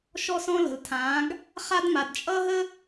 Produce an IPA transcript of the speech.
ʃ ɔ˦ s ɔ̃˦ l ə̤˨ l tʰ ãː˨˦ ɡ | χ a˦ d m a˨ d t͡ʃʼ ʌ˦ ɦ ə˦

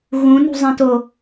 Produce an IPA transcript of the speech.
ɣ ũ n ṳ zˤ ĩ t o

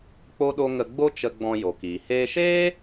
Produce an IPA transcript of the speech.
k͡p o˦ ɗ o˦ ŋ ə˧ ɡ͡b o˦ t͡ʃ ə˧ ɡ͡b ɔ̃˧ j o˨ k iː˨ h eː˧ ʃ eː˦

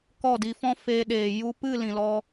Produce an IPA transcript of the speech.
k ɔ˦˨ d i˧ f ɔ̃˦ f e˧ ɗ eː˨ j u˧ p ɨ˦˨ l ĩ˨ l ɔ˧

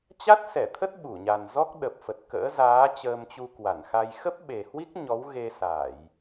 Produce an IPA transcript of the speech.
t͡ɕ a˦˥ t̚ s ɛ˧˩ t̪ʰ ə˦˥ t̚ ɓ u˧˩ ɲ a˨˩ n z ɔ˦˥ k̚ ɗ ə˨˩ p̚ f ə˨˩ t̚ k ə̰ː˧˥ z aː˨˦ t͡ɕ əː˧ m t͡ɕ u˧ k w a˧˩ n x a˧ j x ə˦˥ p̚ ɓ e˨˩ h w i˦˥ k̚ ɲ ɔ˨˦ w ɣ e˧ s a˧˩˨ j

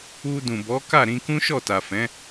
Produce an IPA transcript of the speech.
u˧ d ũ˨ b ɔ˨˦ k a˦˨ ɾ ĩ˧ k ũ˦ ʃ ɔ˦˨ t a˨ f ɛ̃˨˦

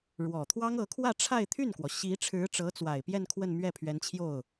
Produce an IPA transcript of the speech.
ɻ w ɔ˨˩ t̪ʰ w ɑ˥ ŋ ɤ˧˥ kʰ w ä˥˧ ʈ͡ʂʰ a˥˧ ɪ̯ t̪ʰ y˥˩ n k w ɔ˩ ɕ i˧˥ ʈ͡ʂʰ ɻ̩˧˥ ʈ͡ʂ ɤ˧˥ t͡s w a˨˩ ɪ̯ p j ɛ˥˧ n kʰ w ə˥˧ n m ɥ ɛ˥˩ pʰ ɥ ɛ˧˥ n t͡ɕʰ j o˥˩ ʊ̯

